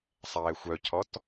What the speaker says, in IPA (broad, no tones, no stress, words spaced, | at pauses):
sˤɛːxʷœcʰɔt